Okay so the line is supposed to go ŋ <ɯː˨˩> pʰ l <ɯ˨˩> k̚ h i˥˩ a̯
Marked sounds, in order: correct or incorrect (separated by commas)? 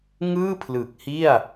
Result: incorrect, correct